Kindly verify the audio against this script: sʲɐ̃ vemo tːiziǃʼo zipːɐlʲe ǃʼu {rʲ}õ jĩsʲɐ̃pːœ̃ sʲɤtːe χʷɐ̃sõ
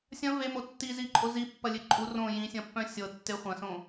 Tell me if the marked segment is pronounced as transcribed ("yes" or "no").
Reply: no